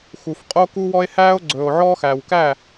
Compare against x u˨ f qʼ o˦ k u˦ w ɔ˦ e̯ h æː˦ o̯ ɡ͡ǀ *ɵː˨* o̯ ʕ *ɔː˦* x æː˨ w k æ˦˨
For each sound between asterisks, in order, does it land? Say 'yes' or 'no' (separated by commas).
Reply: yes, yes